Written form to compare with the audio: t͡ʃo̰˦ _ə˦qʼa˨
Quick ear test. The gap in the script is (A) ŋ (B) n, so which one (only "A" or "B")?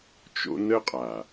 B